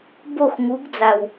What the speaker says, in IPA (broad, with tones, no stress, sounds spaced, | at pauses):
b o˦˨ x ŋ u˨˦ ɡ d͡z a˨ w